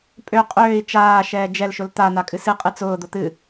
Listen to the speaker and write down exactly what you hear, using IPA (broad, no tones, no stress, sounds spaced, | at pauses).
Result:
pʼ ø qʼ øː i̯ t͡ʃ aː ʃ ɛː d͡ʒ ɛ l ʃ ʊ l t̪ a n̪ a kʼ ɨ s ɨ qʼ ɨ t͡s ʊː d̪ ʊ t̪ ɨ